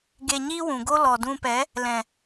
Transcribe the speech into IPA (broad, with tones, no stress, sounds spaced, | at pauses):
ɡ e˧ ɲ iː˦ w ũ˨ ɡ o˦ l ɔ˨ d ũ˧ p ɛ˨˦ | l ɛ̃˨